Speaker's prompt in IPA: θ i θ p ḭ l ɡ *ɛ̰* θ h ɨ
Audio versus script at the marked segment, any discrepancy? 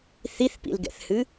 no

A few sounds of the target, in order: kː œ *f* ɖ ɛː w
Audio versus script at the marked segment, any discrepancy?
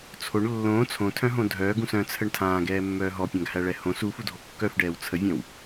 no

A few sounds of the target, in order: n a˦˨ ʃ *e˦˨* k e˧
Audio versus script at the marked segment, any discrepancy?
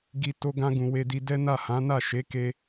yes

